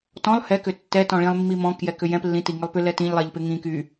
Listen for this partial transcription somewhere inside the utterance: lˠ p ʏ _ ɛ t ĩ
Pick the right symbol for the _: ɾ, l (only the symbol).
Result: l